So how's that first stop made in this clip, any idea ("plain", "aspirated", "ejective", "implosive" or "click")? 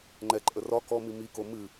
click